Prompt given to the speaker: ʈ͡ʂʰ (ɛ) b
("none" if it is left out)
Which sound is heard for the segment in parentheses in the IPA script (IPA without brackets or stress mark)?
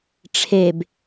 e